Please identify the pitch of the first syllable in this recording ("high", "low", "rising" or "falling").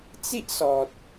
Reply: high